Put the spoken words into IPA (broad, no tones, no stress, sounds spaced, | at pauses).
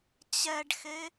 t͡ɕ ɛ ɖ x e